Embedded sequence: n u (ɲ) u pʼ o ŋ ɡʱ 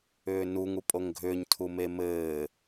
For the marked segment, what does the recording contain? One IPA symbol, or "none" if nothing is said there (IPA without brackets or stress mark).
ŋ